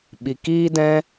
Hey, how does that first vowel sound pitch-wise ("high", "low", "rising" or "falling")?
low